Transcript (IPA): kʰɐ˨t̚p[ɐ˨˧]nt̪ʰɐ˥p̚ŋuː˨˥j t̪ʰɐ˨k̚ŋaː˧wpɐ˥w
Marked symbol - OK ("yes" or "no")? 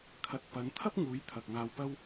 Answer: yes